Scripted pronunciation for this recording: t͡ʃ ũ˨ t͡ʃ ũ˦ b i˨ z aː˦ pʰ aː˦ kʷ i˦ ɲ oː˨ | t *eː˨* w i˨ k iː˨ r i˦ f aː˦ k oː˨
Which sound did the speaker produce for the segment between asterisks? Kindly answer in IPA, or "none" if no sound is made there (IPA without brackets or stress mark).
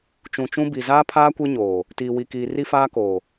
iː˨